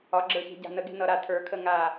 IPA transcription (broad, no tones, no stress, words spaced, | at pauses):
ɒɡ͡ǁə˞çe̤ ɟa̤nəɡe̤ nʌɾa tʰə˞kʰə ŋa